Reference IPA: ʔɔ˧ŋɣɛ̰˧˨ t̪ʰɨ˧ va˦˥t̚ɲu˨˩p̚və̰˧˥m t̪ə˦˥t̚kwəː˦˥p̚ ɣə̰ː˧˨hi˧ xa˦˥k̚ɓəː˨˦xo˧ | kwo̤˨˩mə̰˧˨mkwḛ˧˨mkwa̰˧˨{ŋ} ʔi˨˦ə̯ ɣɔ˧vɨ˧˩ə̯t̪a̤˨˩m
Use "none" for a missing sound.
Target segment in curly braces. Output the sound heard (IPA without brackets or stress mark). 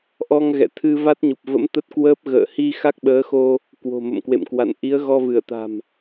n